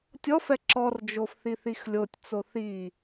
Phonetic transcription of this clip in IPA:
tʲɔfɛ ǁɔrd͡ʒof θiθixlʲotʲt͡so θi

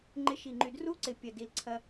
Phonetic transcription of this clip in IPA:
ŋ͡ǃɪ˧ʃi˨˩ŋ͡ǃy˨˩ dru˦˥ǀɪ˨˩ pʲɐ˨˩di˨˩lǀʰɐ˧

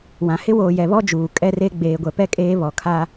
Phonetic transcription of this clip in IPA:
wã˨ hɪ˦woː˨jɛ˨βɔ˦ d͡ʒuː˨ kʼɛ˦re˦ ɡ͡beː˨ɡʷɛ˨pɛ˦ kʼeː˦βɔ˨kʰa˦

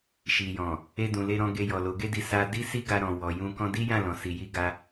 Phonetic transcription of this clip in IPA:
ʃi˨jɔ̃˨ | e˧dũ˨le˧ɾɔ̃˧ ɡe˧jɔ˨lo˨˦ ɡe˦di˧ sa˧ di˦si˦ɡa˧ ɾɔ̃˨ wɔ˨jũ˧ kɔ̃˧di˦jã˦˨lɔ̃˨ si˨ji˧ ɡa˧

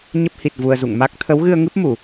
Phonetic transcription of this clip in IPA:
ɲə˦˥p̚ hi˨˩t̚ vu˧ə̯zṵ˧˨ŋ ma˦˥k̚ t̪ʰə˨˦wɣɨ˧ə̯ ŋɨ˦˥p̚mu˧˩˨

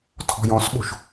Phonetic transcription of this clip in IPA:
tʰɔ̤jɔ̃sɓo̤ʃ

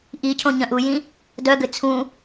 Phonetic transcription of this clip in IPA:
ʔicʰõ ɲœ̃ʔujĩ | dœɡʏ t͡sʰũ

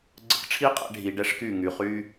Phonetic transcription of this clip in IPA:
ɡ͡ǀə̰˧kʈ͡ʂʰi˦ qʼɛ̰˧ɖʱi˨ ɖɛ˦ʂky˦˨ŋy˨ χy˦

